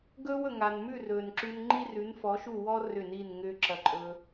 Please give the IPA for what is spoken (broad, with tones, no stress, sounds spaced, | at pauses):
ɡ ɵː˦ w ɵ˨ ŋ a˨ n m ʉ˦˨ r ɵː˨ n ǁ ʉ˧ n ŋ͡ǃ i˦ r ʉ˨˦ n f ɔ˨˦ ʃ u˦˨ w ɔ˧ r ʏ˦˨ n iː˦˨ n ŋ ʏː˦ ǁ ɐ˧ ǃʼ ɵː˧